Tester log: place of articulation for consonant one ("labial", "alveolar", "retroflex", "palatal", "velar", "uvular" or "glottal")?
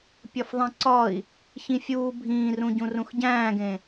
labial